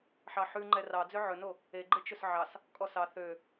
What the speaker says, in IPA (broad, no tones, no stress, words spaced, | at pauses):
ħɑħʉ ŋ͡ǃɛrɑd͡zø ʕɵno | eɡ͡ǃe t͡ʃɵsʕɑs | kʼɔsɑ θø